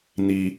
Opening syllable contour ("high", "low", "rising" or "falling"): low